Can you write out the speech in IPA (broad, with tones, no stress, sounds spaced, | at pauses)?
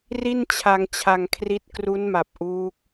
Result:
r i˥˩ n t͡ɕʰ a˧ ŋ t͡ɕʰ a˧ ŋ kʰ r i˦˥ t̚ k r u˦˥ n m a˨˩ p̚ ʔ uː˦˥ k̚